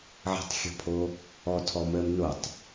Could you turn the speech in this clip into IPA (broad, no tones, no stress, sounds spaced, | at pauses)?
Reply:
ʕ ə̤ tˤ xʲ ɔ̤ pʰ o | ɔ tʰ ɔ m əː m n o tˤ